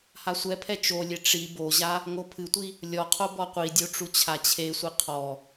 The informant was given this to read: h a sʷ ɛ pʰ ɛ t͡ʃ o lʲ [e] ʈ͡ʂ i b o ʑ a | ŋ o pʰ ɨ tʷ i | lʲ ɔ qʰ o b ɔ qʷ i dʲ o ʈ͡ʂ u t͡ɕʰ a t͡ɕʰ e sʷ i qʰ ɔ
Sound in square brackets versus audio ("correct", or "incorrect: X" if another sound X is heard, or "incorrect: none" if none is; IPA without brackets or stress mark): correct